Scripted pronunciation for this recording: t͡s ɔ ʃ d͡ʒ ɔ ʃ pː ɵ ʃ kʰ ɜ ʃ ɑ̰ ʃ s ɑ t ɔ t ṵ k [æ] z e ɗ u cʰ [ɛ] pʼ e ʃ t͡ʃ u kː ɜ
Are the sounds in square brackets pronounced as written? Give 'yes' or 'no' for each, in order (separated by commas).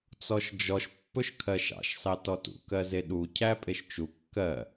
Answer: no, no